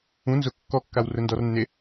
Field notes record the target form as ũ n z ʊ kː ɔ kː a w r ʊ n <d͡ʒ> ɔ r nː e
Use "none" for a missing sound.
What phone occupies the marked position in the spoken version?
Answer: d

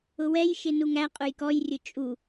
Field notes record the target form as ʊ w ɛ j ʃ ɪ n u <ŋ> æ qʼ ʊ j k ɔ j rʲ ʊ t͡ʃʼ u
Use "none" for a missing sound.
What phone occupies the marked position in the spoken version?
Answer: ŋ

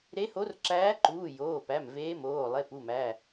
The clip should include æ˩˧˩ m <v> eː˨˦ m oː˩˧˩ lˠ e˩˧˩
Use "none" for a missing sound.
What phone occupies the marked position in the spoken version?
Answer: v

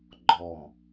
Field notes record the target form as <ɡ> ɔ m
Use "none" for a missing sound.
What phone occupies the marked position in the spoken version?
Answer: ɡ͡ǃ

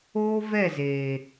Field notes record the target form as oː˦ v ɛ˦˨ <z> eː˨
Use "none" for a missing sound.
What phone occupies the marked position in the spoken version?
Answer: z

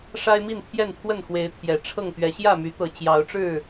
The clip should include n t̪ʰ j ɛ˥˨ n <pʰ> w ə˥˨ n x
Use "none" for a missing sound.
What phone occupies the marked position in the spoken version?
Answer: pʰ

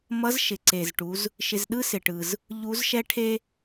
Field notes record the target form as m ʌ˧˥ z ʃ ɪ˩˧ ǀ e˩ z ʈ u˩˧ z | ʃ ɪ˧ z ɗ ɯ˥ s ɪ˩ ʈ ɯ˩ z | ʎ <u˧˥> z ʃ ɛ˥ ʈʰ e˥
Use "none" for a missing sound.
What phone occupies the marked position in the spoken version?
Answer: u˧˥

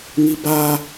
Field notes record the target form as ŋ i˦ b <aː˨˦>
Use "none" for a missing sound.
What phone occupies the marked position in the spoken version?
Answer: aː˦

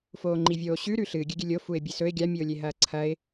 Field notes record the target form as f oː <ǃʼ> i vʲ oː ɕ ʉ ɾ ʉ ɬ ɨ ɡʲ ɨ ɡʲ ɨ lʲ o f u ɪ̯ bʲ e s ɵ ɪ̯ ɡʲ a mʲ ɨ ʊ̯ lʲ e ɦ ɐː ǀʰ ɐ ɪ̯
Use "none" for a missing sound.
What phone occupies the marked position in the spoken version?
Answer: ŋ͡ǃ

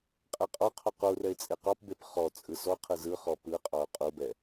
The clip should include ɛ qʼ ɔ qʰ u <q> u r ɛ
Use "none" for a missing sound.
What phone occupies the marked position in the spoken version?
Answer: q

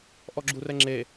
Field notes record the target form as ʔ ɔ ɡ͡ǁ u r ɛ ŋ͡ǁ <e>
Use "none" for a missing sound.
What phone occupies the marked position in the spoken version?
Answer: e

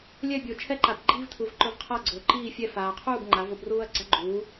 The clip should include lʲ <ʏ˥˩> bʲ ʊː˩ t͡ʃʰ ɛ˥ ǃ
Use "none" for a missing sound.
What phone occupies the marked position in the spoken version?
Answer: ɛ˥˩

